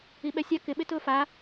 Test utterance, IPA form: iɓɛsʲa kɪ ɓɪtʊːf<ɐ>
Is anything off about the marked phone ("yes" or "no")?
yes